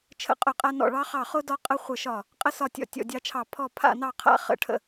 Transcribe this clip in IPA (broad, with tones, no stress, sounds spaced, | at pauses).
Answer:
t͡ʃʰ ə̰˧ qʼ ʊ˧˩ qʼ a˧ n ɔ̰˧˩ ɭ ɑ˧ χ ɑ˧˩ χ ʊ˧ d ɒ˧ qʼ ə˧ χʷ ə˧˩ ʃ ɒ˧˩ | qʼ ə˧ s ɒ˧˩ tʲ ɔ̰˧˩ tʲ ɔ̰˧˩ dʲ ɑ˧ t͡ʃʰ ɑ˧˩ pʰ ɔ˧˩ pʰ a̰˧˩ n ɑ˧˩ qʰ a̰˧˩ χ ə̰˧˩ ʈʰ ə̰˧˩